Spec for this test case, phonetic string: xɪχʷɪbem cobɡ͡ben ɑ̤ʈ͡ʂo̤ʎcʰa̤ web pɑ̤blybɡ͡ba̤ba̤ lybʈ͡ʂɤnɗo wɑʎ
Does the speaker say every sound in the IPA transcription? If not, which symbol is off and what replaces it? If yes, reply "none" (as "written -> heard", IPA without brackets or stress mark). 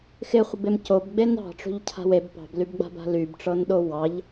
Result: none